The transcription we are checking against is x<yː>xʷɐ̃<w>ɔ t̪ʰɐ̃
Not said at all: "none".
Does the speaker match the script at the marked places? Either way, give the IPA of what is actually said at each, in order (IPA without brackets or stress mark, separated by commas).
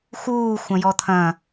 uː, j